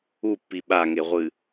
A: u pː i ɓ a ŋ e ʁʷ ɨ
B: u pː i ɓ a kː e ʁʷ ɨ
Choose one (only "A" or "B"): A